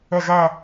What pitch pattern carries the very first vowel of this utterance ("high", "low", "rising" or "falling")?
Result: falling